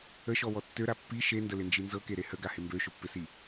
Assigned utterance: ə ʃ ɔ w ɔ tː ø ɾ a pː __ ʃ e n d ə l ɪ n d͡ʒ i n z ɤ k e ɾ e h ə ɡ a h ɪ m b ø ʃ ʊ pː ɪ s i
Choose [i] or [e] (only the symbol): i